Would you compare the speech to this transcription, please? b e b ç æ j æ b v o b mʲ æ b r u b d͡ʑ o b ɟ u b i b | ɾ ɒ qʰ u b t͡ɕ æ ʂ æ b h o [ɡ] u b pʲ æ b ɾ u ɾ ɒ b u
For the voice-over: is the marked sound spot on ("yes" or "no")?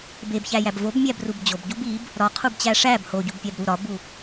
no